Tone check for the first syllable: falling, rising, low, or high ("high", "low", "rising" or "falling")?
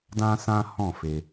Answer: high